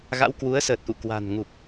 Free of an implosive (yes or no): yes